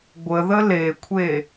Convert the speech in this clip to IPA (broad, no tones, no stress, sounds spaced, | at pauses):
ɡʷ ə ð ə l e kʷʰ e